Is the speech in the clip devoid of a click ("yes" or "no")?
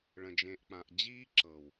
no